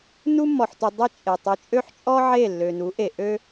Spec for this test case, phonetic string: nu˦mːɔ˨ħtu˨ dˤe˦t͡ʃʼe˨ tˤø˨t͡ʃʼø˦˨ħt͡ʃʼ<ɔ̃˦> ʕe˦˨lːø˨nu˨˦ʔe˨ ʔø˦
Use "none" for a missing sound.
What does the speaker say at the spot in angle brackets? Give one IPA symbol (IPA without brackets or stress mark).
ɔ˦